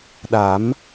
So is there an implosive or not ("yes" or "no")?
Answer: yes